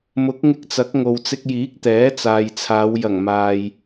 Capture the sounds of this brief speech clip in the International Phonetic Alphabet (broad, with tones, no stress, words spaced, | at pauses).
mʊ˨˥k̚ŋɪ˧k̚t͡sɐ˨˥k̚ ŋo˨wt͡sɪ˧k̚jiː˨˥k̚ t̪ɛː˨˥t͡saː˨jt͡sʰaː˨˧w jɐ˨˩ŋmaː˨j